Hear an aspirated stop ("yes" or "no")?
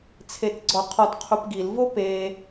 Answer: yes